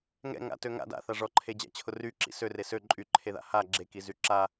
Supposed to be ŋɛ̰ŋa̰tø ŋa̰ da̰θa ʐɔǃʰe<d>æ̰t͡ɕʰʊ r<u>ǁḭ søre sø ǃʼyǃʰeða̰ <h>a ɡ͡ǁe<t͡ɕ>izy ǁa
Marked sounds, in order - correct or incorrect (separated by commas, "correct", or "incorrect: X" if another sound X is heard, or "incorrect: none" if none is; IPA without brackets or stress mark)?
incorrect: d͡ʑ, incorrect: y, correct, incorrect: k